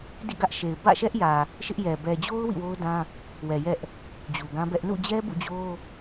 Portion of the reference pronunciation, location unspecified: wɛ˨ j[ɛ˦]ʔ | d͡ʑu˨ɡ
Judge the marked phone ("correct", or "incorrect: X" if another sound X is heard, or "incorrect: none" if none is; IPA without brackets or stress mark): correct